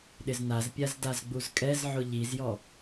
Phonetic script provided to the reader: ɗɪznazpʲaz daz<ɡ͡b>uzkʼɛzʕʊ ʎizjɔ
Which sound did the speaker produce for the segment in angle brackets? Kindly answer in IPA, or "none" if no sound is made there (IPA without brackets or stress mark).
ɡ͡b